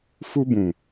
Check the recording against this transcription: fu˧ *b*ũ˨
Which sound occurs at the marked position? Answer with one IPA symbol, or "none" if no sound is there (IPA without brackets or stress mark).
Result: b